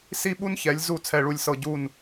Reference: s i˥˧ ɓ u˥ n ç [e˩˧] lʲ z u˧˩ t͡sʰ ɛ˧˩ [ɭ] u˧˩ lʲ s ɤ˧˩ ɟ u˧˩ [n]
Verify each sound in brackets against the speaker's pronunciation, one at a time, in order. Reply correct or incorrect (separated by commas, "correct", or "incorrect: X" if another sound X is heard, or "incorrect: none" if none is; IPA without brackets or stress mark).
incorrect: ɛ˩˧, correct, correct